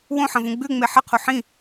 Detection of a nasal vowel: present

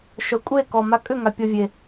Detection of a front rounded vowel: present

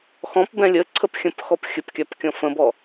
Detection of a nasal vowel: present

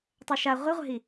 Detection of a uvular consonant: present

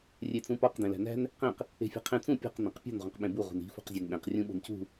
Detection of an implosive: present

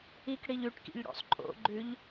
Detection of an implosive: absent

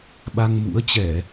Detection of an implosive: present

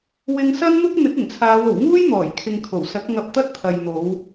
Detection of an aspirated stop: present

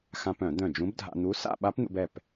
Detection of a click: absent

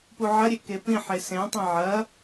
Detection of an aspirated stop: absent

